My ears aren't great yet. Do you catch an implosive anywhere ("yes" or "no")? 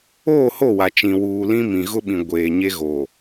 yes